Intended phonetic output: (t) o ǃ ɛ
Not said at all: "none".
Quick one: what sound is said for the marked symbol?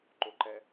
ǃ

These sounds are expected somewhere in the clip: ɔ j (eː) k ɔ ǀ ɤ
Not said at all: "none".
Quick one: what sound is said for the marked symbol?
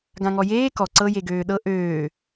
eː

